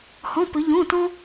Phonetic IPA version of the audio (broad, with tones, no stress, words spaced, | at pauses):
hɔ̃˧˥˧pɘ˩˥ ʎõ˧˥˧tɔ̃˥